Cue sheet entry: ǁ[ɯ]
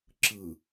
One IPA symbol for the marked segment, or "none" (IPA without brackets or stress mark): ɯ